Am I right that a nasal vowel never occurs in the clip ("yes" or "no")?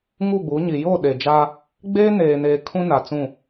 no